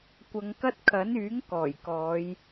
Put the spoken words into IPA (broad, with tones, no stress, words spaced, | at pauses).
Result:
kʷɐ˨˧ŋ kɐ˥t̚ kʰɐ˨˥nyː˨˥ŋ kɔː˨˩j kɔː˨˧j